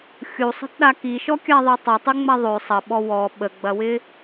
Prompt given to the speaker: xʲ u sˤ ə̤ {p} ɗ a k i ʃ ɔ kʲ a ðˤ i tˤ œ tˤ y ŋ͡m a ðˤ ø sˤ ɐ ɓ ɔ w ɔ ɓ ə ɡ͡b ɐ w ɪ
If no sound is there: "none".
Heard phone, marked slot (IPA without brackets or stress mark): t